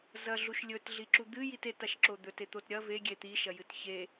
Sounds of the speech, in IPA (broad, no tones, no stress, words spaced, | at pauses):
zɐɮuʃ lʲɵtɮiǁu d̪ɨjit etaʃǁo d̪ɵtet̪ot ɾʲɐ veɡʲe t̪iʃɐjɨt çe